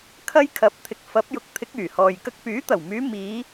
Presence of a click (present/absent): absent